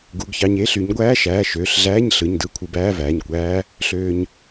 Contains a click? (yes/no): no